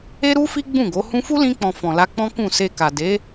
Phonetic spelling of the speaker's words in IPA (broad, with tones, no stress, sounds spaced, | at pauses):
e˦ ɾ u˦ f i˦ ɡ͡b ũ˦˨ ɡ o˨˦ h ũ˧ f u˦ l ĩ˧ k͡p ɔ̃˨ f ɔ̃˨ l a˧ k͡p ɔ̃˦ k ũ˦˨ s e˧ k a˨ d e˨˦